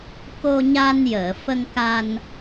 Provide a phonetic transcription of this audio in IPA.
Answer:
ko˧ɲa˧njəː˨˩˨ fə˧ŋka˧n

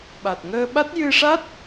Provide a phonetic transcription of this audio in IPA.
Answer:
ɓa˨˩t̚ŋəː˧ɓa˦˥t̚ jɨ˧ʂa˦˥t̚

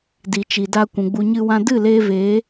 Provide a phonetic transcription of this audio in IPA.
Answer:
di˨t͡ʃi˨da˧ kʷũ˨ɡ͡bu˧ɲɨ˦wã˦ dɨ˦˨ leː˦veː˨˦

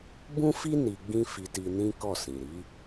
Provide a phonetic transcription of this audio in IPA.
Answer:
bũ˦fi˦ ni˧ɡ͡bĩ˦ fi˧ti˧ nĩ˦kɔ˦˨ sĩ˨ɾi˨˦

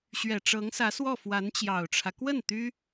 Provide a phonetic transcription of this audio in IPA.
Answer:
ɕɥɛ˨˩ʈ͡ʂɤ˧˥ŋsä˧˥ swɔ˥˩fwa˧˥nt͡ɕjɑ˨˩ʊ̯ʈ͡ʂʰä˦ kwə˥˩n t̪y˥

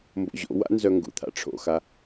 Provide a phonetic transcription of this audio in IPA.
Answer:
mbo̰ʑo̰wa̰ nzœŋɡṵt̪ʰa̰ ʈ͡ʂʰo̰xa

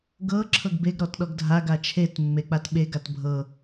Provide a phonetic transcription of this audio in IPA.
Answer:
ɡɤ ǁʰɤɡbeɡ ɾɔtɗɔɡdʱa ɡat͡ʃʰet mːek͡patɓe ɡatbʱɤ

